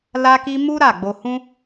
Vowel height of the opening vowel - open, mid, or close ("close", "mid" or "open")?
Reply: open